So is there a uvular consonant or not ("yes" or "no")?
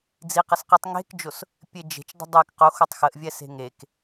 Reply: yes